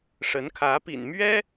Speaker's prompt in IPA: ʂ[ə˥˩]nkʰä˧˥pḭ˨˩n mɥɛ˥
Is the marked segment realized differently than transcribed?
yes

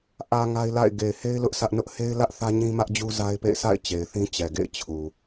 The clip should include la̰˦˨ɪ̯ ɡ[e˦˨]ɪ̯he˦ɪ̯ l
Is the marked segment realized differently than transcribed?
yes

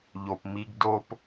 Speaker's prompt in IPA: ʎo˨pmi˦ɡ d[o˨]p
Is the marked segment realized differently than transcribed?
yes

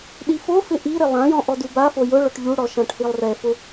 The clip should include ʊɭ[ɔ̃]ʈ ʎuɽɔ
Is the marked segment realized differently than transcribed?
yes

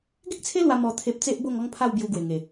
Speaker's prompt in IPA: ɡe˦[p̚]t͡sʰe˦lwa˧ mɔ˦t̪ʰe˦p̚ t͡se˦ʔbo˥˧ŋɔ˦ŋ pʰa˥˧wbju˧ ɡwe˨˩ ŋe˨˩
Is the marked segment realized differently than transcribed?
yes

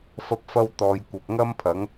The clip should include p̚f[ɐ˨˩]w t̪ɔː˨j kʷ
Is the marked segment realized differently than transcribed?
yes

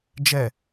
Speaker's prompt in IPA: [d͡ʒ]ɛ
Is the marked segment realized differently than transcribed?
no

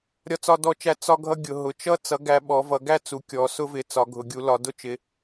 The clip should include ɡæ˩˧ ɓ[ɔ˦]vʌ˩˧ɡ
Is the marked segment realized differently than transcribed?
yes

